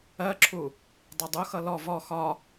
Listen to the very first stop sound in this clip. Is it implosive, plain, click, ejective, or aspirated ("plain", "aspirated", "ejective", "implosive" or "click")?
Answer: click